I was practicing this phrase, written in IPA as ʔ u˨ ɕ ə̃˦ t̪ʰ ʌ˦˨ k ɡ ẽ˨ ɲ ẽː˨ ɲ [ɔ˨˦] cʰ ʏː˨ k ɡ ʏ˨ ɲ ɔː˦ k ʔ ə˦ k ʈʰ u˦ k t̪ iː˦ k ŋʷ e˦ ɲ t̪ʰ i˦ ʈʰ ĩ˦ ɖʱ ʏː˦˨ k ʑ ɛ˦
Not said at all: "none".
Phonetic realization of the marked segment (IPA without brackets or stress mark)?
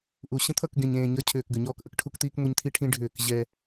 ʌ˨˦